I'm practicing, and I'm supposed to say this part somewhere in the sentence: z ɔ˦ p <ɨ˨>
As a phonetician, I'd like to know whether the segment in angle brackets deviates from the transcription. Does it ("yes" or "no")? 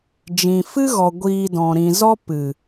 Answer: no